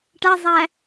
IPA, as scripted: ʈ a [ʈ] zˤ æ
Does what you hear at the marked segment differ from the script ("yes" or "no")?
yes